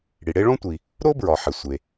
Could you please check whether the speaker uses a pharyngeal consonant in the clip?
yes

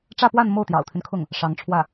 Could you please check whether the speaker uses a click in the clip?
no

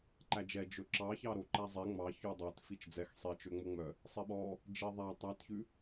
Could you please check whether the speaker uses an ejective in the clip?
no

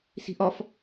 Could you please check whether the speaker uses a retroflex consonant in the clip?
no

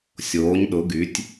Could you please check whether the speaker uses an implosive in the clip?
yes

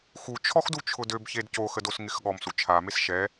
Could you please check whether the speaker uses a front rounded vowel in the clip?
yes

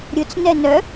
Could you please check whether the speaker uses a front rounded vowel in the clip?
yes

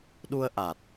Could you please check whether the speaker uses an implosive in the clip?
yes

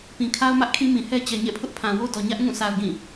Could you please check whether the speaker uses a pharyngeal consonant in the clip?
no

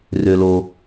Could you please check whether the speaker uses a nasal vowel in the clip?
no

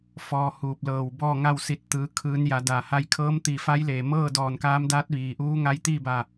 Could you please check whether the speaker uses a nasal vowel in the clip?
no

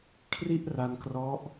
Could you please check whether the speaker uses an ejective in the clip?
no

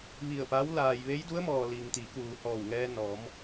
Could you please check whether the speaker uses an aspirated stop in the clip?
no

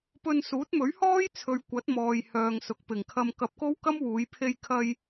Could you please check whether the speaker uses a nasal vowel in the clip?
no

